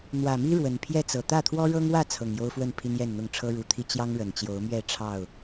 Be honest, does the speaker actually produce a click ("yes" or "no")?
no